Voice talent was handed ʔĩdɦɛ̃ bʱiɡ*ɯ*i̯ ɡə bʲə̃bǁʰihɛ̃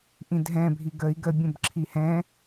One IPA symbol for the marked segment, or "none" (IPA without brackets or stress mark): ə